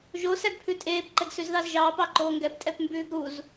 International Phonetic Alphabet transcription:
ʒ o s æ ɡ pʰ ʉ tʼ eː p ǃ ɛ ɡ s ʉ z ð ɑ z ʒ ɑː p ɑ ǃ oː ŋ ɡ ɛ p tʼ ɛ p m b ʉː ɡ ɾ u z

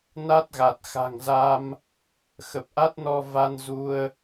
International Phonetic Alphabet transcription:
n a˦˥ t̚ ɣ a˨˩ t̚ x a̤˨˩ ŋ z a˧ m | x ə˨˩ p̚ ʔ a˦˥ t̚ n ɔ˧ v a˧ n z u˧ ə̯

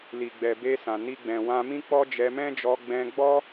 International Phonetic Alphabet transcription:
l i˨ ɡ͡b ɛ˨ b e˧ s ã˨ n i˧ ɡ͡b ɛ̃˨ w ã˧ m ĩ˦ k͡p ɔ˦ d͡ʒ ɛ˧ m ɛ̃˦ d͡ʒ ɔ˧ ɡ͡b ɛ̃˧ ɡ͡b ɔ˦

